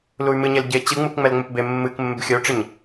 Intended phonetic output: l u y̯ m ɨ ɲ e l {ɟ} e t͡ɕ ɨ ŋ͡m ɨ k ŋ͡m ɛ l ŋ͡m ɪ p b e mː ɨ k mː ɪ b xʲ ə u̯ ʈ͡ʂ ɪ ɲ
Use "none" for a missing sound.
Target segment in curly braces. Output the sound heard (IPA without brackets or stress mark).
ɟ